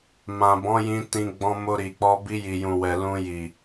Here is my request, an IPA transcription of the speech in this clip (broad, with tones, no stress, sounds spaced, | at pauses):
m ã˨ b ɔ̃˨˦ j ĩ˧ t ĩ˧ ɡ͡b ɔ̃˧ m o˧ ɾ i˨ k͡p ɔ˧ b i˧ j i˨ j ũ˨ w ɛ˨ l ũ˧ j i˨